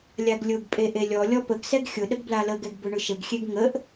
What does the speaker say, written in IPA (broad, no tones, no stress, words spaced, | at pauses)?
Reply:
lʲaɡlʲʊɡpʼe ʔelʲɔlʲɔ pəɡsɛɡ xʲʊ ɗəɡblaləɡɛɡ bʊɳʊʃəɡxʲeɡ ŋəʔ